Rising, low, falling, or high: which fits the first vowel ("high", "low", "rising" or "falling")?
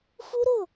high